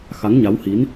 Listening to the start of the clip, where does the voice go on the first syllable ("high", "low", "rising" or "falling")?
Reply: rising